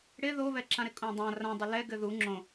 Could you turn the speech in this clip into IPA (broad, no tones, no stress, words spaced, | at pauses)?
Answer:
ɽɪ ðoβɛǁãɾɪ kʼõdˤã rãdˤɘ lɛ ɡɘðu ŋ͡ǁõ